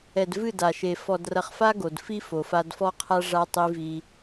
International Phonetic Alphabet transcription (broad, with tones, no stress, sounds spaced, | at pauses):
ɛ˨ d v ɨ˦˨ d a˨ ʃ e˨ f ɔ˨ d r ɐ˨ χ f a˦ ɡ o˨ d f i˦ f o˨ f a˦ d f ɔ˦ qʰ a˦ ʐ a˦ tˤ i˦ v i˦